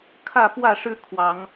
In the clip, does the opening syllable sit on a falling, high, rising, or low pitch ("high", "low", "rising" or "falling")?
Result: falling